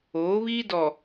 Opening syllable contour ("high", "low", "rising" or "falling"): rising